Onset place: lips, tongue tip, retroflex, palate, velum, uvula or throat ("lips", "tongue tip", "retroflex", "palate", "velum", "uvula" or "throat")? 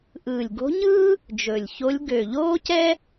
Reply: throat